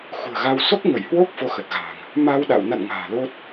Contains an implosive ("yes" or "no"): yes